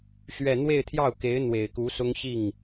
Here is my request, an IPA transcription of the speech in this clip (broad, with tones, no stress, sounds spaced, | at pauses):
ɕ ɥ ɛ˥˧ n̪ w e˥˧ ɪ̯ t̪ʰ j ɑ˥˩ ʊ̯ k e˧˥ ɪ̯ n̪ w e˨˩ ɪ̯ k u˧˥ s ʊ˥ ŋ ɕ i˥˩ ŋ